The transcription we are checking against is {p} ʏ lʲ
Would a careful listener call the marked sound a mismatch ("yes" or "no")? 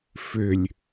yes